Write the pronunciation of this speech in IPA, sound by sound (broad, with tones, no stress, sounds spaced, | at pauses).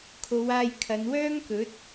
kʰ o˨˧ w aː˧ j kʰ ɐ˨˧ n w œː˥ ŋ k ɵ˨˥ t̚